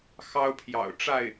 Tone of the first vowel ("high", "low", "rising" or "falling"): high